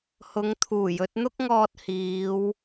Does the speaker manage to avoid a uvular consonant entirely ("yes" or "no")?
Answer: yes